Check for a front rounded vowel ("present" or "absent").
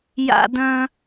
present